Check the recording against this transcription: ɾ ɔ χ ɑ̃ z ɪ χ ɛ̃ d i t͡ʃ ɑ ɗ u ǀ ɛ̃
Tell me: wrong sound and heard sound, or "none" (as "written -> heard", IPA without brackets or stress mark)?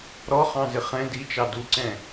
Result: ɗ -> d